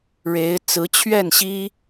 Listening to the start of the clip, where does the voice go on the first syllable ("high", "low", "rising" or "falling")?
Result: rising